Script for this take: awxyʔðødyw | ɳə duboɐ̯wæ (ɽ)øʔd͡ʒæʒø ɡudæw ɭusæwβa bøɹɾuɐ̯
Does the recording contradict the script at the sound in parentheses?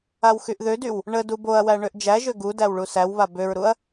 yes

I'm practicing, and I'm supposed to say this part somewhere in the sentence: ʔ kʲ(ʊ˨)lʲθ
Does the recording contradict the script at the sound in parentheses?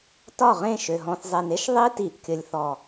yes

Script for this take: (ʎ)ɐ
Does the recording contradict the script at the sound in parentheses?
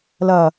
yes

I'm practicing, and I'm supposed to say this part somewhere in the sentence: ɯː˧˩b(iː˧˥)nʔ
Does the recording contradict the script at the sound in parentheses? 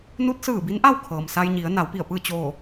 yes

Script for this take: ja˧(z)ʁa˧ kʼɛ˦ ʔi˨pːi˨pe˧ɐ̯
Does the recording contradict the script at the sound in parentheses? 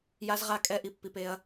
no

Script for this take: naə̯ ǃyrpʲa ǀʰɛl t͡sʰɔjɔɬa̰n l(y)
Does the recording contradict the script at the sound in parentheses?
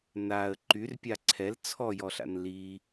yes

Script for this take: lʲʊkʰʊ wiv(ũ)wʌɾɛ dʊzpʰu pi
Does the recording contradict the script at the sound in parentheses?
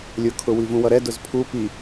no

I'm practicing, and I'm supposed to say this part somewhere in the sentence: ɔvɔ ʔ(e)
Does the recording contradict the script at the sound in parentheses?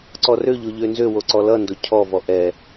yes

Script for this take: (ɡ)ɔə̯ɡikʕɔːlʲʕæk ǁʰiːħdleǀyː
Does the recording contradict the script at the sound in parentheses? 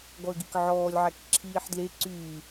no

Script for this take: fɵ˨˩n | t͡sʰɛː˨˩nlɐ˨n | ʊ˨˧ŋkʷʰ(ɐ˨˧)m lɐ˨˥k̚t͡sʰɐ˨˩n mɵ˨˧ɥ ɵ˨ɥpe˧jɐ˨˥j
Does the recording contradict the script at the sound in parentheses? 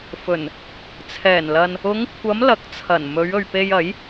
no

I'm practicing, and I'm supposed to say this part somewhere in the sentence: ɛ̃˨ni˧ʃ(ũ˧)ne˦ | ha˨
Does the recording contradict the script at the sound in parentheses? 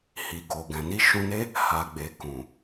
no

